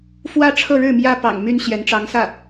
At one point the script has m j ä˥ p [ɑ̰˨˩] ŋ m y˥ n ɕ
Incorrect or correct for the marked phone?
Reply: correct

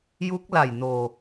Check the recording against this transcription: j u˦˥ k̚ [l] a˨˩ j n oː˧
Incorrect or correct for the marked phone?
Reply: correct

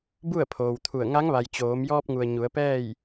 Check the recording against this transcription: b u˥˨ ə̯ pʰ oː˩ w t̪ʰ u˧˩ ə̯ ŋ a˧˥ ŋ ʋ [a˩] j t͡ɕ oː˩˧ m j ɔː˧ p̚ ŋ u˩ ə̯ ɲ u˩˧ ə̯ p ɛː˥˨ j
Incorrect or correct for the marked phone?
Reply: correct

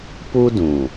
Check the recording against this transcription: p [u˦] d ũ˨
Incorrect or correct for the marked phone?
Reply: correct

